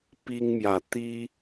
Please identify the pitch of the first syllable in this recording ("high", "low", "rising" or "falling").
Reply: high